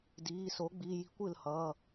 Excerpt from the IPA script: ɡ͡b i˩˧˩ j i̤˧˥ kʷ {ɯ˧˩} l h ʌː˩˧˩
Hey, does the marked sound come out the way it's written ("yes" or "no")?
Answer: yes